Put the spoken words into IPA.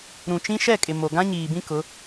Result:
ɾũ˨t͡ʃĩ˦ ʃɛ˦˨ kʼɪ˨ mo˨ɡã˦ɲiː˨bĩ˦ kʊ˨˦

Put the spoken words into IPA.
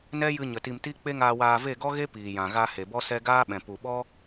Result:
nɛ˦jɨ˧ɲə˨ ti˧m ti˦ k͡pe˦ŋaː˧waː˧ ve˦˨ɡɔ˦ɣe˦ piː˨jã˨ɣa˧ he˨bɔ˦sɛ˦ ɡaː˦ɓɛ̃˨ pu˨ɓɔ˦

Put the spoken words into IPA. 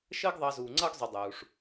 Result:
ʃəː˦ɡðˤɑ˨zuː˩ŋ͡ǀʌː˦ɡ zˤu˨dˤuː˩ʂ

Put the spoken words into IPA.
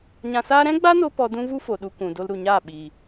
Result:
ɲã˧saː˦ ɾɛ̃˦ɡ͡ba˦no˧ pɔ˧dũ˦vu˦ fo˨ɗu˧kʷũ˨ do˧lɾu˨ɲaː˦˨ ɓiː˨

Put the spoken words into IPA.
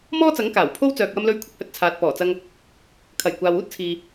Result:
mɔː˥t͡sɐ˨˥ŋ kaː˨˩wpʰo˥w t͡sœː˨k̚wɐ˧mlɵ˧ɥ kʷʰɪ˨˥k̚hɵ˨t̚ t͡sʰaː˨t̚pɔː˨˩t͡sɐ˧ŋ | kʰɐ˨˩jkʷaː˨w uː˥t̚t͡sʰiː˨

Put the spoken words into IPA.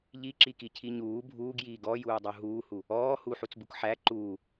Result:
ʎiǁikicʰi ɲuː bʱuːɡjiː ɡɔjuːdˤu ɦuːhu | ɔː huħut͡sbuk ħæ ǃuː

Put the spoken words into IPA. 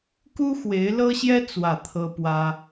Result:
ku˥xwe˧˥ɪ̯lɤ˥ɕjɛ˥ t͡swä˥˩ t̪ʰɤ˥pwä˥

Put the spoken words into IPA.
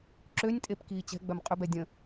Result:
ǁønʲtʼep kiːt͡ɕɛ̤ɡ͡bœm qʼʏbɛ dʲə̃

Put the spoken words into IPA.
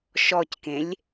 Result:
ʃɔckẽlʲ

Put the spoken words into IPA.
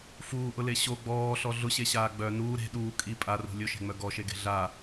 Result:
fuːʔʊle ɕo ɡ͡bɔːɬɔ ɮʊɕeɕaː ɡ͡bœ nuː ɾe̤ ɗuː kʼi pʼarṳ lʲʊʃe̤ŋ͡mœ ɡɔʃeɡe̤ ɮa

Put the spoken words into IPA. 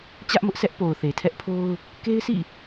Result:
t͡ɕä˦ʔmʊ˦ʔsɛ˦ʔ po˨ʊ̯θe˨tʰɛ˦ʔpʰo˦ʊ̯ | ke˦ɪ̯sḭ˦˨

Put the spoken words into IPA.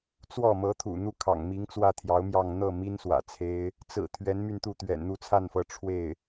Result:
t͡swɔ˥˩mɤ˧˥t̪ʰṵ˨˩ n̪u˥˩ kʰɑ̰˨˩ŋ mi˧˥ŋt͡swä˥˩t̪ʰjɑ˧˥ʊ̯mjɑ˥˧ŋ n̪ɤ˥˩mi˥n swä̰˨˩t͡sʰe˥ɪ̯ | t͡sɹ̩˨˩ t̪ʰɥɛ˧˥nmy˥˧nt̪u˥˩ t̪ɥɛ̰˨˩nn̪u˥˧t͡sʰa˥˩nfɤ˧˥ ʈ͡ʂʰwe˥˩ɪ̯

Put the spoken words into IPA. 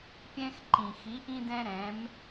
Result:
pʲɛ̃˧x ǃĩ˩xi˩˧ ʔĩ˧dɛ̃˧ɾɛ̃˩˧m

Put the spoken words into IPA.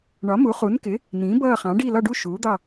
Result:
ɳɒ˩˥mu˩˥ χu˩˥nkɪ˩˥ | nĩː˩˥bʌː˦˨χɑ̃˩˥ɖi˦˨ lɒ˦˨ɖu˦˨ ʃuː˩˥d̪ɑ˦˨

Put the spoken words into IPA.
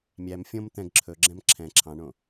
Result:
mʲæm fʲõm t̪ɛ̃ɡ ǁʰɵɡ͡ǁɛ̃m ǁʰɛ̃ ǁʰɑ̃ɳõ

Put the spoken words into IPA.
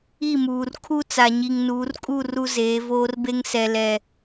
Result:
i˦˨muː˨rkʰu˦ t͡sa˨ɲi˨ŋnuː˨˦rkʼu˦˨ ru˦zeː˨˦voː˦rbe˦ŋ sɛ˨lɛ˨

